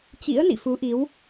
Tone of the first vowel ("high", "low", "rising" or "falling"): rising